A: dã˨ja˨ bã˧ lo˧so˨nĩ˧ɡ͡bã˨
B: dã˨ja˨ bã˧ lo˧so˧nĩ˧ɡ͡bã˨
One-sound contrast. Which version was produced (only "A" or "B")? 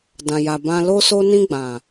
B